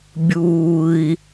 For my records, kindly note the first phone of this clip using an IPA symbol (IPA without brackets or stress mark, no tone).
bʲ